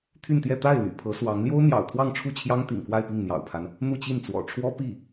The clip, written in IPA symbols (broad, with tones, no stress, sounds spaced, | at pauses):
t̪ʰ y˥˧ n t̪ j ɛ˥˧ t̪ a˥˩ ɪ̯ l y̰˨˩ pʰ ɤ˧˥ s w ɑ˧˥ ŋ l j o˥ ʊ̯ n̪ j ɑ̰˨˩ ʊ̯ t̪ʰ w ɑ˥˧ ŋ ʈ͡ʂʰ u˥˩ t͡ɕʰ j ɑ˥ ŋ t̪ ḭ˨˩ ŋ k w a˥˧ ɪ̯ p i˥˩ ŋ n̪ j ɑ̰˨˩ ʊ̯ pʰ a˦ n | n̪ u˥˧ t͡ɕ i˥˩ n t͡s w ɔ̰˨˩ ʈ͡ʂʰ w ɔ˥ p i˥˩